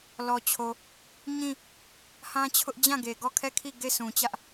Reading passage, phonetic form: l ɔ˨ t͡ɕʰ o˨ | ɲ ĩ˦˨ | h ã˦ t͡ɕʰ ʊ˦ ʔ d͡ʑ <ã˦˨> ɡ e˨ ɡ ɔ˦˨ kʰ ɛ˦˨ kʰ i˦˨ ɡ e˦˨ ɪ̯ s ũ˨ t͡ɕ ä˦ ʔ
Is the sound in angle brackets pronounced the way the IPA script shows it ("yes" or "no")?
yes